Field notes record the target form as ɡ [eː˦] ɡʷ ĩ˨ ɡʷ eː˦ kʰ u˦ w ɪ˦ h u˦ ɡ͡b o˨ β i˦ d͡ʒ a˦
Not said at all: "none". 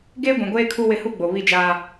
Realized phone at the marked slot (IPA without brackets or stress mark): eː˦